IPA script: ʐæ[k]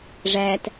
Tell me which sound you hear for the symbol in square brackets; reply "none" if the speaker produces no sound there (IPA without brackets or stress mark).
t